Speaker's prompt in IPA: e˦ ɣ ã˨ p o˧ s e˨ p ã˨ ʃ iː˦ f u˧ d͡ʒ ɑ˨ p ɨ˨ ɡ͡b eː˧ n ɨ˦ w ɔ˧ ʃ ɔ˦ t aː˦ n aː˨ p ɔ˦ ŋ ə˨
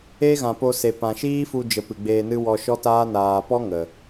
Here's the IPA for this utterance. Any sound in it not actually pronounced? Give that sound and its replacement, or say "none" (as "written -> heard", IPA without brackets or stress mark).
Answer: ɑ˨ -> ə˨